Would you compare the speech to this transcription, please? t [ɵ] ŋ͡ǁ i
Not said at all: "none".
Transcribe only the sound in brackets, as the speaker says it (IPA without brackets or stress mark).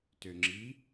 ø